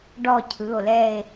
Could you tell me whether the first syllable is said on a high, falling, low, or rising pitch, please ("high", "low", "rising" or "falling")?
falling